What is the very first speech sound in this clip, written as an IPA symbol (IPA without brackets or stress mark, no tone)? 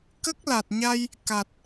k